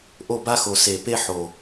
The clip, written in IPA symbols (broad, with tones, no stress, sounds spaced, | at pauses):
ʔ o˦˨ b a˦ x o˨ s e˨ p e˦ ħ o˨